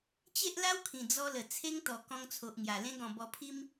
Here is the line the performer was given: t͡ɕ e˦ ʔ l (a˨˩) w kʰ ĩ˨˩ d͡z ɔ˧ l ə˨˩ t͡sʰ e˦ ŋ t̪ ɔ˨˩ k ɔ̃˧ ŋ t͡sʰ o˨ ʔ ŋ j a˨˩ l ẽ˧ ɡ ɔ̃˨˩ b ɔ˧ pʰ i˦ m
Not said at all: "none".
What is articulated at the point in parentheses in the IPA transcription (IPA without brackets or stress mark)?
a˦